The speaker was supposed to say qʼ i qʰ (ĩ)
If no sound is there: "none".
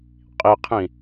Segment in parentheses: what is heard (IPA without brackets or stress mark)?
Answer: ĩ